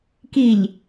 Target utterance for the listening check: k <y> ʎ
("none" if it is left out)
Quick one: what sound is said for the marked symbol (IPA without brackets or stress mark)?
i